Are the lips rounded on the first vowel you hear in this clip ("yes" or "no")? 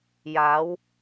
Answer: no